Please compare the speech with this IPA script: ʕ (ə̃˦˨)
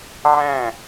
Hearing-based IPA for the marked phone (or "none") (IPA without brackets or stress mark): æ̃˦˨